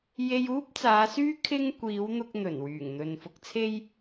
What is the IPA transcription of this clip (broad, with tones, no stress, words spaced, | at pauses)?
je˧juː˥p̚t͡saː˨˧syː˥ kʰɪ˥ŋkʷiː˨˥w n̪ʊ˧k̚n̪ɵ˨˩n wyː˨˩ŋn̪ɵ˨nfʊ˧k̚t͡sʰe˥j